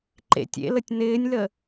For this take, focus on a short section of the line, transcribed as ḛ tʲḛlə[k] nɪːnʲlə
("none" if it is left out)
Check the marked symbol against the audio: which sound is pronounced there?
tʲ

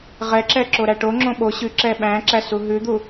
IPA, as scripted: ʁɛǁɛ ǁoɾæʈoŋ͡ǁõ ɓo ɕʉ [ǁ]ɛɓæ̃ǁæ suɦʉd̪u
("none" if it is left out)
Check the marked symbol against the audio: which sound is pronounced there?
ǁ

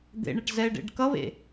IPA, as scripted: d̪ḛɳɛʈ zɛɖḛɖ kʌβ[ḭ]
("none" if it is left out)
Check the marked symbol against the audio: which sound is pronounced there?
ḛ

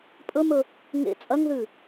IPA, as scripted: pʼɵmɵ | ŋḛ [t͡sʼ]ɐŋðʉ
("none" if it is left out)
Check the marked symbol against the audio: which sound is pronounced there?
t͡sʼ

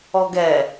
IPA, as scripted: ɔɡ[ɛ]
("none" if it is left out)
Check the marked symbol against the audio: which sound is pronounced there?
ɛ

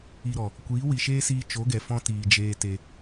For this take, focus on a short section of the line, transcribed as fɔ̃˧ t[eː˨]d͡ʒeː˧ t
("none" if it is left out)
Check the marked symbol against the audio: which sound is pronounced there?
iː˨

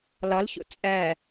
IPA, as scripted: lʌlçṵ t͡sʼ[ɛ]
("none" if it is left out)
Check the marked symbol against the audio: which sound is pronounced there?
ɛ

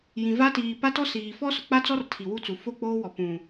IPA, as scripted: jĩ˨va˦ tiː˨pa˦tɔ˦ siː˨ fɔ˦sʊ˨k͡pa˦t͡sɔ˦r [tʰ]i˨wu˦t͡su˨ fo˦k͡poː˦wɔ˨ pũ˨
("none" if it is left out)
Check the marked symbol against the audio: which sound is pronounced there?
tʰ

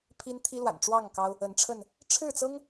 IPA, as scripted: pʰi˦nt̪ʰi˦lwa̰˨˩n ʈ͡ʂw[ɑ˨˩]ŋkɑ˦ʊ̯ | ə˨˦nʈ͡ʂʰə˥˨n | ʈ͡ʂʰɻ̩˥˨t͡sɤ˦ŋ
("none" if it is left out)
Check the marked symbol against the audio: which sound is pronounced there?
ɑ˥˨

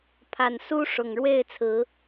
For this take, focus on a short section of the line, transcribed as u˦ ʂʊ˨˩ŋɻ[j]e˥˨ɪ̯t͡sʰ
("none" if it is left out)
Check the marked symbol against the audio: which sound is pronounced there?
w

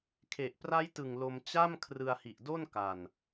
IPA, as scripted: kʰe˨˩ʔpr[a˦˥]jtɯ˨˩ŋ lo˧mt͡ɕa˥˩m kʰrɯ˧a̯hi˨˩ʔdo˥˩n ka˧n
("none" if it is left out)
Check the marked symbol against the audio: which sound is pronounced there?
a˦˥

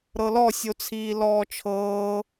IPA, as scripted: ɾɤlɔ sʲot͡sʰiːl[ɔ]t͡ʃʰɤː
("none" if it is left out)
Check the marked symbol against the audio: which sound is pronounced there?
ɔː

